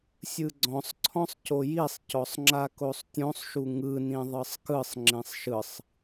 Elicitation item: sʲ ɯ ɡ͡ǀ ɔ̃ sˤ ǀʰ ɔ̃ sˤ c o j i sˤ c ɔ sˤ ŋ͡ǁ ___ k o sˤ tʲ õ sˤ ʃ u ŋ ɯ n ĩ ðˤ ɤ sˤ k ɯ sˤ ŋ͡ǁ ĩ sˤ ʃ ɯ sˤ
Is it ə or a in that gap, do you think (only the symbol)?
a